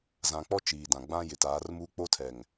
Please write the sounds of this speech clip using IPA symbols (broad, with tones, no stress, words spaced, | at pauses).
zã˨k͡pɔ˦ t͡ʃiː˨dã˨ɡ͡bã˦ jɪ˨taː˨˦rmuː˦ k͡po˦tʰɛ˨ŋ